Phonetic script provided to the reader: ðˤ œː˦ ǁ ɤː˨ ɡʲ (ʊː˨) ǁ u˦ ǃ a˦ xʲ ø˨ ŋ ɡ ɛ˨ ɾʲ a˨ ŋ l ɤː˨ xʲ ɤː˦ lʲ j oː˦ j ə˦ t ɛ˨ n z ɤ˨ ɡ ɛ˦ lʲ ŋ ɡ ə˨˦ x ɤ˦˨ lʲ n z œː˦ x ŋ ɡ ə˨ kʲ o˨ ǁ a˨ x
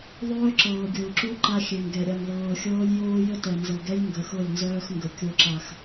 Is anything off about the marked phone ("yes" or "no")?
no